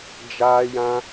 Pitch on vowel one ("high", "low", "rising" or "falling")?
high